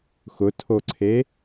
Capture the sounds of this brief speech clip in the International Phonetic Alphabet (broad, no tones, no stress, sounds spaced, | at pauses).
x ʊ tʰ o ǀʰ e